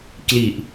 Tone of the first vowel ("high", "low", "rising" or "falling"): low